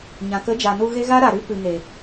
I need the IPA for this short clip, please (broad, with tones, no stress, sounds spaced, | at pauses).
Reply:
ɲ ã˨ k ə˨˦ d͡ʒ a˨ n u˧ ɣ e˦ ɣ a˦ ɾ a˨ ɾ ɨ˦ p ɨ˨ ŋ e˨